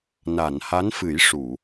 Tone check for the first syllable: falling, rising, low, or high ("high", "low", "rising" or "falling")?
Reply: low